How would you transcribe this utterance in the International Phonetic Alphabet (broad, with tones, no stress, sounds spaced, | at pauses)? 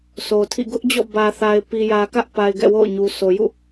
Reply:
sʰ o˨ tʰ ḭ˦˨ ɡ ʊ˦ ʔ d͡ʑ ɔ̰˦˨ b ä˨ θ a˨ ɪ̯ p i˨ j ä˨ k ä˦ ʔ p a˨ ɪ̯ ɡ ɛ̰˦˨ w o̰˦˨ ʊ̯ ɲ u˨ s o˨ j ṵ˦˨